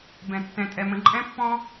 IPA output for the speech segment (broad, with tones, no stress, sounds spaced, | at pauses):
b ɛ̃˩ tː ɛ̃˩ tʼ ɛ˩ m ə̃˩ ǃʼ ɛ̃˥ pː ɔ̃˥